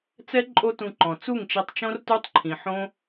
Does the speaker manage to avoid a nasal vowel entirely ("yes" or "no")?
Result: no